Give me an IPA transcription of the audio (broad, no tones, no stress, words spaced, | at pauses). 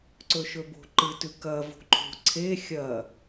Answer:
ǀɵʃɵbo̤ ǃɨtʉ kɐ vo̤ǃʰo̤ ǀʰe xʲɐ